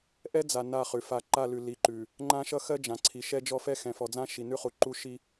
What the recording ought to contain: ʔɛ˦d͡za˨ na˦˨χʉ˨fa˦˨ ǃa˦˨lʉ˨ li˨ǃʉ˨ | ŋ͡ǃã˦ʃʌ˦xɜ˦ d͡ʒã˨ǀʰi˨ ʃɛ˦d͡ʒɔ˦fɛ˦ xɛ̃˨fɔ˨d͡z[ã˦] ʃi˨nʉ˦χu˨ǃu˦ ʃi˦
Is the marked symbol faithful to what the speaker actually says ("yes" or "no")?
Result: yes